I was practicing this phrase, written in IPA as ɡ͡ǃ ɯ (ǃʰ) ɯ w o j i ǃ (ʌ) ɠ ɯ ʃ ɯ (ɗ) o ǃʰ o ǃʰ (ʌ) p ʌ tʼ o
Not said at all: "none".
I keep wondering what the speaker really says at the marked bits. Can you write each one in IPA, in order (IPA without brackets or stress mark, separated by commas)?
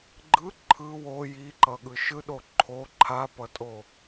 ǃʰ, ʌ, ɗ, a